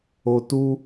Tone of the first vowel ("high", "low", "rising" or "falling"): low